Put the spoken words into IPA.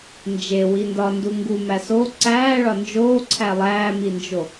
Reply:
n d͡ʒ e w i n d ɒ n d u ŋ ɡ u m æ s o ǀ æː ɭ ɒ n d͡ʒ oː ǀʰ æ lˠ æː m i n d͡ʒ o

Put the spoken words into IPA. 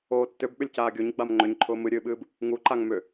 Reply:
oː tː ʏ b ɓ ʏ lʲ c aː ɡʲ o ɲ ɡ͡b a m ŋ͡ǃ ʏ ɲ ǃʰ ʊː m ɨ ɾʲ ɨː ɓ ɨː b | ŋ u ǃ a ŋ m ʏ

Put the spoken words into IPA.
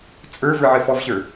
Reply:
t͡sʼ ə˞ v ə˞ ʕ ɘ f ɔ v ɕ ə˞

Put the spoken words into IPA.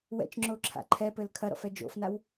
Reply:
w ɛ̰ t͡ʃ ŋ͡ǁ o ǁʰ a̰ ǃʰ ɛ p ɘ l kʰ ɐ ɾ ɔ̰ f ɛ d͡ʒ o̰ f n a w

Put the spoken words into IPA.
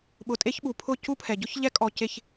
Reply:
ɓ ʊ˨ tʼ e˦ ç ɓ u˨ pʰ ʊ˦˨ c u˦ pʰ ɛ˨ ɟ ʊ˦ ç ʎ ɛ˦ kʼ ɔ˨ c e˨ ç

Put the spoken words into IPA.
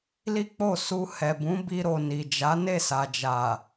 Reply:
l i˦ k͡p o˦˨ s u˧ h ɛ˨ b ũ˨˦ b i˧ ɾ o˨ n i˨ d͡ʒ a˨˦ n e˦˨ s a˨ d͡ʒ a˨

